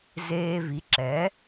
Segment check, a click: present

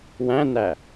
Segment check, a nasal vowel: present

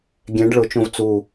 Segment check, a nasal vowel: present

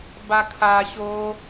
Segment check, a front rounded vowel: absent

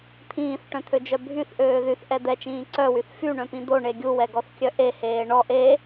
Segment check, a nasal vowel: present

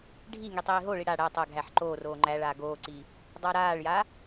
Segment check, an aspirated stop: absent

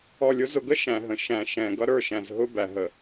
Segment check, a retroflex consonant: absent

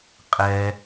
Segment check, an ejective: present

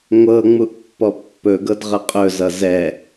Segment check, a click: absent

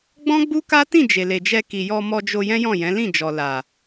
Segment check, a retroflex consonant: absent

